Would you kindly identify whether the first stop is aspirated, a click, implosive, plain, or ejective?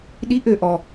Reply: implosive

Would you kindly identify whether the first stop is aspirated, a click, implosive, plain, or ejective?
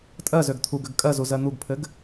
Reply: ejective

